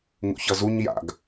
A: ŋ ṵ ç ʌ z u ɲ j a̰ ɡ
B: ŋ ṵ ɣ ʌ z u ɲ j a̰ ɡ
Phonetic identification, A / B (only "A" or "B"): A